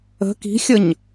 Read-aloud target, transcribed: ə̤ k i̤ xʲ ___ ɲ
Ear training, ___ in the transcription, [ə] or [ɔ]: ə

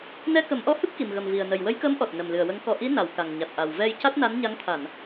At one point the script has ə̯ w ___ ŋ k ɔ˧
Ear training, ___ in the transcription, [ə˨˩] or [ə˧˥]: ə˧˥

